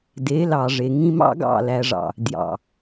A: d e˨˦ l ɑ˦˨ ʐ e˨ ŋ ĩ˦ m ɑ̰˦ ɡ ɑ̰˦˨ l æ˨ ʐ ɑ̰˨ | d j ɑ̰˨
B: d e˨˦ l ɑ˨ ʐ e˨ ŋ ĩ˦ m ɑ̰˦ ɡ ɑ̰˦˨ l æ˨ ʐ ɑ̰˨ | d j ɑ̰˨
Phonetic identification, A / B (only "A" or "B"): B